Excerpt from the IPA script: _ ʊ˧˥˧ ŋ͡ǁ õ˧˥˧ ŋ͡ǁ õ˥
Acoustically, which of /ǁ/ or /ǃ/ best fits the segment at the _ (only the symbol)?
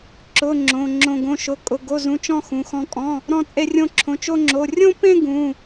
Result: ǁ